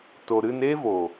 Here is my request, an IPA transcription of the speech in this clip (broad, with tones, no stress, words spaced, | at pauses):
to˨ɾɨ˧neː˦vo˨